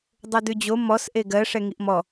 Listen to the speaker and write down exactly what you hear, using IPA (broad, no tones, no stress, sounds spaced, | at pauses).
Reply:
dˤ o d ʉ d͡ʑ o m ɔ s ʔ e ɡ ɜ ʂ ɛ ŋ i ʔ m ɔ